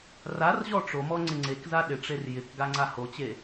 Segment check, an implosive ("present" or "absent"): present